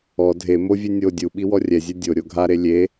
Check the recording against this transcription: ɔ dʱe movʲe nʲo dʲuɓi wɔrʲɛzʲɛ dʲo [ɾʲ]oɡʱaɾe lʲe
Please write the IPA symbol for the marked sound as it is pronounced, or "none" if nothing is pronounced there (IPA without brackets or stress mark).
ɾʲ